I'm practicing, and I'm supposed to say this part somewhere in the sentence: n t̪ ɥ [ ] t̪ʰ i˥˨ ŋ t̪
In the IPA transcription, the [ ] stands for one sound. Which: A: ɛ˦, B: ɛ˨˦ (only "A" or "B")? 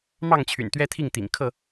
A